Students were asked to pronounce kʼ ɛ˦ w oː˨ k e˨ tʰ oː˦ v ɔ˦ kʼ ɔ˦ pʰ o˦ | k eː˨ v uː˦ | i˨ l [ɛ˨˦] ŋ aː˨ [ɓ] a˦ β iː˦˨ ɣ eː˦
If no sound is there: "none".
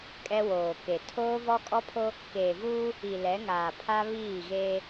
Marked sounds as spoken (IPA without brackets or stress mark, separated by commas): ɛ˨˦, pʰ